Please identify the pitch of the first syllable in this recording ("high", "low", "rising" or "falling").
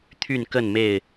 falling